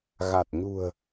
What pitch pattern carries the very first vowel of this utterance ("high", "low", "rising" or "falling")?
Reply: low